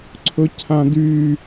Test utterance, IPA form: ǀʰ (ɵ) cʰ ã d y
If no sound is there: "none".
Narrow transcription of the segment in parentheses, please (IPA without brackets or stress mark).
ɵ